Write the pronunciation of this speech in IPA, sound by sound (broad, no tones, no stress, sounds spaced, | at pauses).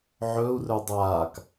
ʕ ɵ u̯ r ɵ dˤ aː k